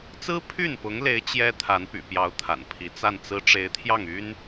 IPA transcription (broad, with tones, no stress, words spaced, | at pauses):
t͡sɹ̩˥pʰy˥˩npʊ˧˥ŋle˧˥ɪ̯ t͡ɕjɛ˥ t̪ʰa˧˥npy̰˨˩pjɑ˧˥ʊ̯ t̪ʰa̰˨˩npʰi˧˥ t͡sa˥˩nt͡sɹ̩˥ ʈ͡ʂe˧˥ɪ̯t̪ʰjɑ˥˩ŋy˥n